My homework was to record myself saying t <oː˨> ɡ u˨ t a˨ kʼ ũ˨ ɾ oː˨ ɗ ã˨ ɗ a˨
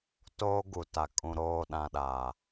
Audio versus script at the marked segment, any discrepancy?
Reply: yes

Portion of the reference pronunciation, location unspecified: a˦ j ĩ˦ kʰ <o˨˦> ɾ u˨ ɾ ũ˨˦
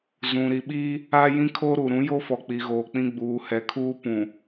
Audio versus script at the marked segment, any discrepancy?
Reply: yes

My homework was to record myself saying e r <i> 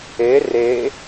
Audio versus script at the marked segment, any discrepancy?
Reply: yes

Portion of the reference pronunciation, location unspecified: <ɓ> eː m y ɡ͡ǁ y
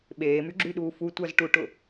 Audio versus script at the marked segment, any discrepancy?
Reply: no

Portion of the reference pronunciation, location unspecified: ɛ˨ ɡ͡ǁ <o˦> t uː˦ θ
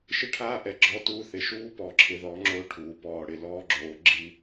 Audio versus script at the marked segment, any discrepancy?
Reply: yes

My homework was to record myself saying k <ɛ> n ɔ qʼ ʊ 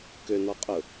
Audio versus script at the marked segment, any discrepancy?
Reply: yes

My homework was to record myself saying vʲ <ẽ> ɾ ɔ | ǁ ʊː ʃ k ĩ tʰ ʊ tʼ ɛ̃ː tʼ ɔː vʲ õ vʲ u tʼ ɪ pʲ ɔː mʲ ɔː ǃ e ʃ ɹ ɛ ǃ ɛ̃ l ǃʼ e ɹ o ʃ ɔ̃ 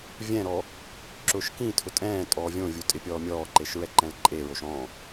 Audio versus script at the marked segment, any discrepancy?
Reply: yes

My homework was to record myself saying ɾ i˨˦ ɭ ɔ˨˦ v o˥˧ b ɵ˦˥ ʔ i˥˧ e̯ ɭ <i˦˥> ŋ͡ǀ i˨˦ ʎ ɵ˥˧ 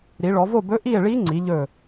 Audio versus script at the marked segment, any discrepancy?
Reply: no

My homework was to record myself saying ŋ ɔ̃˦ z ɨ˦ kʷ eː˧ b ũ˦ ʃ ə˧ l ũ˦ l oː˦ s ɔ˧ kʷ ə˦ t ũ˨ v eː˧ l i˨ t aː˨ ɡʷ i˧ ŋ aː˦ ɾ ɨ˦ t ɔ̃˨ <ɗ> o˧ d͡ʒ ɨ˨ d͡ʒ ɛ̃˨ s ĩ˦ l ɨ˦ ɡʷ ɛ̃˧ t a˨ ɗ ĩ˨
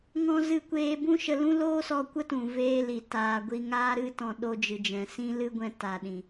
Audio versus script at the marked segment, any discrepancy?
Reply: no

